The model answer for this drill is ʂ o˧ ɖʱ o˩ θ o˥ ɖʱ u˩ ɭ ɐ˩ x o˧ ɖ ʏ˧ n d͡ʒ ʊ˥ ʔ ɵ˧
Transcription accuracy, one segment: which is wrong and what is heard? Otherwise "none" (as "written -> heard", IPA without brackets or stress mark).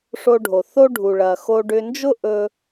none